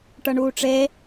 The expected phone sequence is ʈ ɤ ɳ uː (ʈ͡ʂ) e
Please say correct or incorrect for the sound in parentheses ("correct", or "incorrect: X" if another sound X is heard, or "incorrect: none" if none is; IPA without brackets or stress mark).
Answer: correct